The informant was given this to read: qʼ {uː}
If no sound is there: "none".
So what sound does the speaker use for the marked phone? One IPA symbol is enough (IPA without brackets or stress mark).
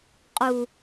u